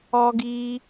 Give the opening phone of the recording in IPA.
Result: ɔ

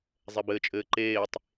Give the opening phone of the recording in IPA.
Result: zˤ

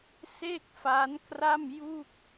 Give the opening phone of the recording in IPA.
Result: s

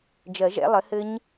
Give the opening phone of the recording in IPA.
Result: d͡ʒ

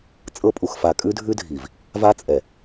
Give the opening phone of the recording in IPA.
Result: t͡sʼ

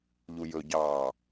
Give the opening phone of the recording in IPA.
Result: ʎ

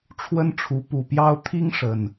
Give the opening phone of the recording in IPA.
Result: ʈ͡ʂʰ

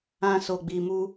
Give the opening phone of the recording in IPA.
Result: ã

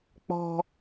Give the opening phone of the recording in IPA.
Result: k͡p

